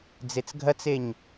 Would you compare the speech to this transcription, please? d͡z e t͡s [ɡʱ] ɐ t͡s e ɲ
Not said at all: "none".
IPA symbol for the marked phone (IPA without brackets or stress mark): ɡʱ